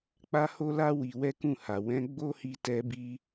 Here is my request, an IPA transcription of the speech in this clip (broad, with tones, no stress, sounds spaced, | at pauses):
k͡p a˦ h o˦ l a˦ w i˧ w ɛ˦ k ũ˦˨ h a˨ w ɛ̃˨˦ ɡ͡b o˦ h i˧ t ɛ˧ b i˧